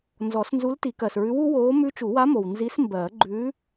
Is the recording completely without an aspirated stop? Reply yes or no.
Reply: yes